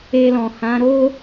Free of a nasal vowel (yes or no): no